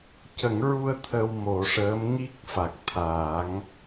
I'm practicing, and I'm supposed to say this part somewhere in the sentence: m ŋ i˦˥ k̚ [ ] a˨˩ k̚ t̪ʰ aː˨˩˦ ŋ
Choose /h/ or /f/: f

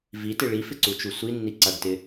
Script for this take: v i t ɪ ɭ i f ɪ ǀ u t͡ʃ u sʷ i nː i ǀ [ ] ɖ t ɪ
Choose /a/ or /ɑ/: a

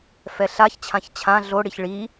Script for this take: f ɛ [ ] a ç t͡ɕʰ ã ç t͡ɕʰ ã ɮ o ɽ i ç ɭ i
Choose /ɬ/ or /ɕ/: ɬ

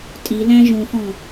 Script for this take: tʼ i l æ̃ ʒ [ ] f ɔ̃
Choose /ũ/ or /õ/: ũ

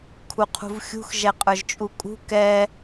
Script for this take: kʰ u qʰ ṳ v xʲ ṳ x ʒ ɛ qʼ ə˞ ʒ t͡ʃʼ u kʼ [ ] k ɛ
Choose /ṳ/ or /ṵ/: ṳ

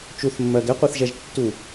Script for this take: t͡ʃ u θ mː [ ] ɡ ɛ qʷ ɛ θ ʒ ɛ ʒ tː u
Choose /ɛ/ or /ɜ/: ɜ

